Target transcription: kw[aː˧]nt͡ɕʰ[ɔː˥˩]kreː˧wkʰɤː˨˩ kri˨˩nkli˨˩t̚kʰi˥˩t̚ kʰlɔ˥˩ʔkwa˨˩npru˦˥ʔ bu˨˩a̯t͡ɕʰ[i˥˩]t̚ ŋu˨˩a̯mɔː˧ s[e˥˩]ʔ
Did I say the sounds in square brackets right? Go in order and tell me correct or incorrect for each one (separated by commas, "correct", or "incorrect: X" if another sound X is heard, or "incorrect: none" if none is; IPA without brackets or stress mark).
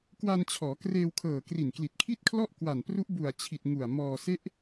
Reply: incorrect: a˧, incorrect: ɔː˩˦, incorrect: i˨˩, incorrect: e˦˥